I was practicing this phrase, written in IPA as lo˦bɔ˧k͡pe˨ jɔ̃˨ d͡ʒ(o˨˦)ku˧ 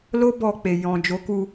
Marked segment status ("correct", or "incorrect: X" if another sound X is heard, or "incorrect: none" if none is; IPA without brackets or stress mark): correct